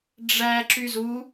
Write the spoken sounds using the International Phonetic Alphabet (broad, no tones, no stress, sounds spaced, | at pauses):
ɖ͡ʐ æ ǁ y z u